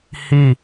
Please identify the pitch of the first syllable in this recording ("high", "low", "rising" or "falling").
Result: falling